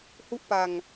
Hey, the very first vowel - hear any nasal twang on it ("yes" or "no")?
no